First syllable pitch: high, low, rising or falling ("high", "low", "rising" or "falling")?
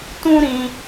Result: high